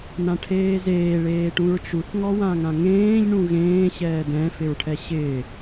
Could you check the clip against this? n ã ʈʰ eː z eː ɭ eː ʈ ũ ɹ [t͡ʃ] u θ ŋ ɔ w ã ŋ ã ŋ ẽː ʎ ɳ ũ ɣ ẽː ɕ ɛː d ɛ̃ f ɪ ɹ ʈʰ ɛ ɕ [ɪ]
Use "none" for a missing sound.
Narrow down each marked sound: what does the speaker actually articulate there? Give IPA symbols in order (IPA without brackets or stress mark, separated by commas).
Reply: t͡ʃ, ɪː